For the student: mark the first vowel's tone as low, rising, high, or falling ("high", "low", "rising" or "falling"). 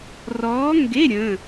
rising